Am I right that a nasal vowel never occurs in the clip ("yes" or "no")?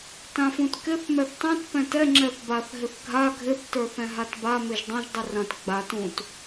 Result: no